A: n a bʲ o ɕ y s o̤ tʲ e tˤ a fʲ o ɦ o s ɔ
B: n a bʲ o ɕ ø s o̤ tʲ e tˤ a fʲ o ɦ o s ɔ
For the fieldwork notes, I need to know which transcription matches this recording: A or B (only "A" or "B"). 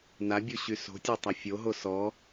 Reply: A